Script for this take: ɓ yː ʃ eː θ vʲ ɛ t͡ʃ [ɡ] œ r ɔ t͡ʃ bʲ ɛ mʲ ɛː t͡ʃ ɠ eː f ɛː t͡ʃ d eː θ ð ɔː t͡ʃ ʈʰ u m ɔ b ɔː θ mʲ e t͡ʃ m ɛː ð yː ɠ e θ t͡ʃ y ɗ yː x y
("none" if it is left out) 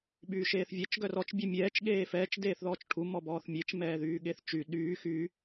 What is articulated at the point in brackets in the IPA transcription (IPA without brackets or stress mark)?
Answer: ɡ